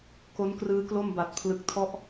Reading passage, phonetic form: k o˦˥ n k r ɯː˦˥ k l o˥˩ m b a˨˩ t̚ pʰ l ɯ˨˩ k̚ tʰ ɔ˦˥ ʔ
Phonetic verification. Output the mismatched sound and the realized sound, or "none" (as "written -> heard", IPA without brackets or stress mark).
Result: none